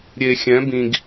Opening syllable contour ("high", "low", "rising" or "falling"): low